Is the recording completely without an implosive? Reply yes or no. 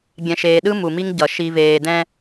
no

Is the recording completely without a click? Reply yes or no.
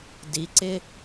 no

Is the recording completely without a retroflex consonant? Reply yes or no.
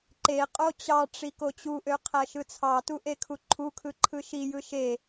no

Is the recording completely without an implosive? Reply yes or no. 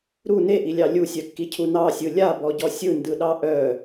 no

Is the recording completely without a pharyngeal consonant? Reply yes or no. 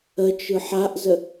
no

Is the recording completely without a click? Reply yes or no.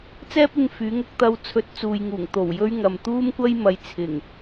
yes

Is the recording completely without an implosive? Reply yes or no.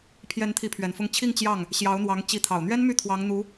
yes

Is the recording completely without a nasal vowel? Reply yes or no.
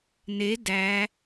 yes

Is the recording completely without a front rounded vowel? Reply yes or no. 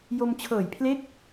yes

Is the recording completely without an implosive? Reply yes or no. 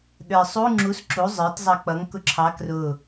no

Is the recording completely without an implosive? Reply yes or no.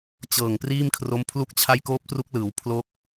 yes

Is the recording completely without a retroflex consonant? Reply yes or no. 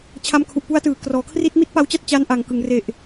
yes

